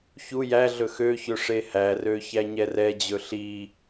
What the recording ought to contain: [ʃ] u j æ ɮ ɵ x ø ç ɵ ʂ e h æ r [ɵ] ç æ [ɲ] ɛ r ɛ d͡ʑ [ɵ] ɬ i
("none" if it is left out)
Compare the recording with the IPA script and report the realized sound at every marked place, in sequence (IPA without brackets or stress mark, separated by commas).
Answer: ç, ø, ɲ, ɵ